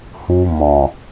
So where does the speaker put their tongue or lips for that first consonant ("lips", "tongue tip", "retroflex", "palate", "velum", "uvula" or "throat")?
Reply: throat